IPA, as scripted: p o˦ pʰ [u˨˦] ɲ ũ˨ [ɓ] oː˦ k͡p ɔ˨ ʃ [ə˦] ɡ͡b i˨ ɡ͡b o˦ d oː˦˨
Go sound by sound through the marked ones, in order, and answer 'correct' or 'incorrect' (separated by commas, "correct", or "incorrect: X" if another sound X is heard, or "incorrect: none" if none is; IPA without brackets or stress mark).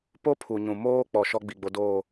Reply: incorrect: u˨, incorrect: m, incorrect: ɔ˦